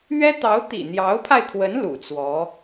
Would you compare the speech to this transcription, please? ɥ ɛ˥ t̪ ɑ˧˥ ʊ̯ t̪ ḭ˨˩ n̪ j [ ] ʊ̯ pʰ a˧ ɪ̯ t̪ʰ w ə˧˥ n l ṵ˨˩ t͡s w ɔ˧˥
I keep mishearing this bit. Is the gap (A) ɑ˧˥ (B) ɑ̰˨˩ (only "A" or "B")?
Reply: A